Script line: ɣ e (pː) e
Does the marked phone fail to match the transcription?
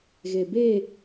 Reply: yes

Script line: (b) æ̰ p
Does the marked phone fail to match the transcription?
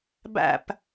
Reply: no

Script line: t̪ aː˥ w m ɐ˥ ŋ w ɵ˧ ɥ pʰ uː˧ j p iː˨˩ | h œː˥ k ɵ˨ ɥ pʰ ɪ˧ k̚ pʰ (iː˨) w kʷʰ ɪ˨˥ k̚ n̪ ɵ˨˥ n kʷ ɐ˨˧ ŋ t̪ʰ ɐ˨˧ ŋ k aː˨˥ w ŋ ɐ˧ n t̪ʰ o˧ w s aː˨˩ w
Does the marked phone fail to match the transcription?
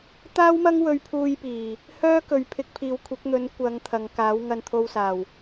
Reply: no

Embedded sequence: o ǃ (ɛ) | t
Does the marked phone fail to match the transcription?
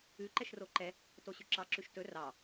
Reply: no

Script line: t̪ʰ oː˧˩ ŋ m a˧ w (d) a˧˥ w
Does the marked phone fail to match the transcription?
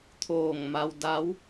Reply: no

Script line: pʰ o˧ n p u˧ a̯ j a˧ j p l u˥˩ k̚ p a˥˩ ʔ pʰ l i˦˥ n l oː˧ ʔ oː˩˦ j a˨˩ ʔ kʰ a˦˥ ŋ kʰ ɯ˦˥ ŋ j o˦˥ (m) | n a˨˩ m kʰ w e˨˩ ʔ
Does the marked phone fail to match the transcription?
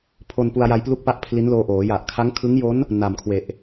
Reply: yes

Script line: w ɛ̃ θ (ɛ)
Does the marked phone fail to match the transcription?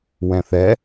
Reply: no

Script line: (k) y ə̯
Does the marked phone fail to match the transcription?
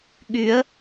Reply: yes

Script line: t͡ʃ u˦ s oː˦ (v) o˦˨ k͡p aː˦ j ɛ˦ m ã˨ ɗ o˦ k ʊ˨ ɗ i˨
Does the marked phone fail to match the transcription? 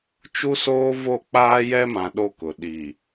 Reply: no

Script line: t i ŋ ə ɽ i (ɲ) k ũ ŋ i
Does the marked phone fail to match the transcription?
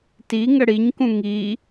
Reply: no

